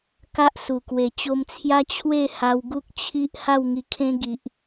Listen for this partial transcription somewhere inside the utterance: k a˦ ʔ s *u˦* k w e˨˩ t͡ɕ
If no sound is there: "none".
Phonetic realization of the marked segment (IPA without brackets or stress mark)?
u˨˩